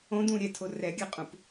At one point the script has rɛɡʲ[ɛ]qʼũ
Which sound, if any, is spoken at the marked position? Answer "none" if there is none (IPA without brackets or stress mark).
ɛ